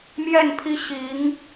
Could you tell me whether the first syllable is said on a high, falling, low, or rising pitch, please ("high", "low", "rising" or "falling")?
falling